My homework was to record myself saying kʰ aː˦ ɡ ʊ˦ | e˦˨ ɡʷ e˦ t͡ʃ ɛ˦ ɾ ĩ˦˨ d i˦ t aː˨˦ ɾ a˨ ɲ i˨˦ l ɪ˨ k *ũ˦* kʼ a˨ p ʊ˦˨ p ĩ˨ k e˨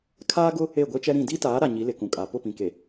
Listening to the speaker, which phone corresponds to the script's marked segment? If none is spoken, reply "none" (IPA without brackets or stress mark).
ũ˨